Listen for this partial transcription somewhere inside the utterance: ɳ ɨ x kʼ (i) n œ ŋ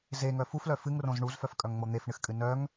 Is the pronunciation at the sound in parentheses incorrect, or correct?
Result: incorrect